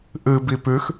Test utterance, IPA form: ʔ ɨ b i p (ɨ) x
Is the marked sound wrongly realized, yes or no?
yes